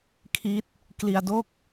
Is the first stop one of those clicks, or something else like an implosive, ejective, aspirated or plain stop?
aspirated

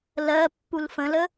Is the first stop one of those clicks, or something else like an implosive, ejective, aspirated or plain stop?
plain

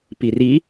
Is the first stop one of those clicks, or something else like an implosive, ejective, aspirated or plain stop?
plain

